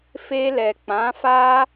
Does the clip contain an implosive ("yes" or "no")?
no